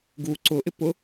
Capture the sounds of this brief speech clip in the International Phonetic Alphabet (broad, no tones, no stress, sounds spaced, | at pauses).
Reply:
ɡ u ǀ ʊ ʔ ɪ p ʊ